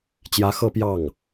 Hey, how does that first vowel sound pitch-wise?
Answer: rising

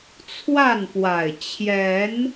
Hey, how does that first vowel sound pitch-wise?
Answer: falling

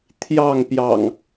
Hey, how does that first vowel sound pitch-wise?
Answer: falling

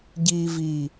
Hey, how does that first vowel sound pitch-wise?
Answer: low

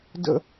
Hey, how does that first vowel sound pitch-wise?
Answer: high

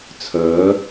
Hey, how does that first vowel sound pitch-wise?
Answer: rising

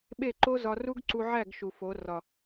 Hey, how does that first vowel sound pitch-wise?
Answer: falling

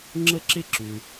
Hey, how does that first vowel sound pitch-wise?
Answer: high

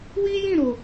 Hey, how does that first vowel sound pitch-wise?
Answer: high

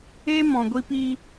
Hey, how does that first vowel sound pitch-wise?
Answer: high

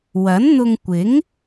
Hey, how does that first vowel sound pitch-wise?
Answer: rising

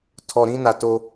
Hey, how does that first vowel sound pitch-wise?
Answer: low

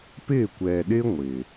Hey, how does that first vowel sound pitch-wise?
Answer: falling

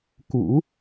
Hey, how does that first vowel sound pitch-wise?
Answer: low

